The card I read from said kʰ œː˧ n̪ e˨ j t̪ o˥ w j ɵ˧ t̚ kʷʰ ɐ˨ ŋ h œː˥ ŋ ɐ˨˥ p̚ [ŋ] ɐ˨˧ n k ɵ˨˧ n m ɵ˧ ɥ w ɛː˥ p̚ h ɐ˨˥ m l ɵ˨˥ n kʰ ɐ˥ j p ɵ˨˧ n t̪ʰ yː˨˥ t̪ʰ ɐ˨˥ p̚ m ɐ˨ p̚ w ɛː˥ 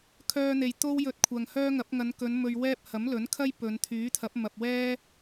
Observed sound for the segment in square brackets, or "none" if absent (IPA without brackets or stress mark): ŋ